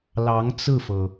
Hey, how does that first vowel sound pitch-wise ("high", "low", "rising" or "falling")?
rising